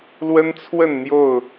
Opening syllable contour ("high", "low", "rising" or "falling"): high